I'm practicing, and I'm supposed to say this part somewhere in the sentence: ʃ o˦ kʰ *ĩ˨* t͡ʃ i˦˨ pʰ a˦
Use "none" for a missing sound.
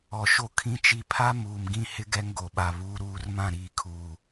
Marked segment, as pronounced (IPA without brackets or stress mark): ĩ˦